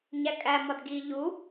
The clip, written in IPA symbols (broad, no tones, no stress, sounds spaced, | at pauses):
ɲ æ kʼ æ m ɒ d ɡ i ʎ u